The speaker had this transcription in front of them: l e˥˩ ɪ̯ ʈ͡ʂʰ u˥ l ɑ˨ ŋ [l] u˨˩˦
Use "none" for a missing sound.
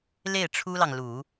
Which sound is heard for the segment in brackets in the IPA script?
l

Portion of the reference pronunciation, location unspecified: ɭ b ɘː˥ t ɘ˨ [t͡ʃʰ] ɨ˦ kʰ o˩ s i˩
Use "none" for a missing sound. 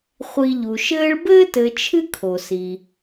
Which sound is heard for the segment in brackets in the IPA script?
t͡ʃʰ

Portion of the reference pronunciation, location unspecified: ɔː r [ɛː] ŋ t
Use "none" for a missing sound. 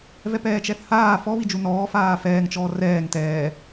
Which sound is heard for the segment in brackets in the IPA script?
ɛː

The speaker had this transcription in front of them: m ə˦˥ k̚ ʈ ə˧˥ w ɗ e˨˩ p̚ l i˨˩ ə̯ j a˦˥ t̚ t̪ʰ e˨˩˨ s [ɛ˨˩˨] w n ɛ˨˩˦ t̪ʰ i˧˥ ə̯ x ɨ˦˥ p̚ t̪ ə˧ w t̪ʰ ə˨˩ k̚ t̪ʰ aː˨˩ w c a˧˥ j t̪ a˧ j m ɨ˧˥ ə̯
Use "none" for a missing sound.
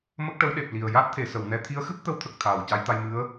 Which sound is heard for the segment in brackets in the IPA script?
ə˨˩˨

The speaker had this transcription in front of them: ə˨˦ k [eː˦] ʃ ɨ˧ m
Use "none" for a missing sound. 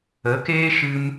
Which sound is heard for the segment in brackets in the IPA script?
eː˦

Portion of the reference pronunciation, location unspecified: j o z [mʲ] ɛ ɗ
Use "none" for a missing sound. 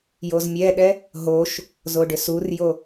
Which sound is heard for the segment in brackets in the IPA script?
mʲ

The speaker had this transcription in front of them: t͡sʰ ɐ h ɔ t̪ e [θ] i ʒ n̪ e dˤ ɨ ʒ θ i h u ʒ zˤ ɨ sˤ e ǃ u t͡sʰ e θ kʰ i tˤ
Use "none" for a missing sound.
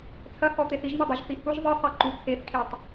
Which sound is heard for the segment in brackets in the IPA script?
θ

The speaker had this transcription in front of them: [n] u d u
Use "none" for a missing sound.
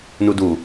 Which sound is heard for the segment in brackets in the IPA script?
n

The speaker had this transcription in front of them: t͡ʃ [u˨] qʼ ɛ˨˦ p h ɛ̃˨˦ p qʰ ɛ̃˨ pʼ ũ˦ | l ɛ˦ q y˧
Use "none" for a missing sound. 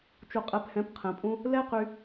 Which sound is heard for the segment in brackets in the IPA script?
u˨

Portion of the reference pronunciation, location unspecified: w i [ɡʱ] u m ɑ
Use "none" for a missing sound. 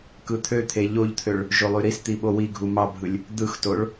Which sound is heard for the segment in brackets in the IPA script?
ɡʱ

